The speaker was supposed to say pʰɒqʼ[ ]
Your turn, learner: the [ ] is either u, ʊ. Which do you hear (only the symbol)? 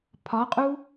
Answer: u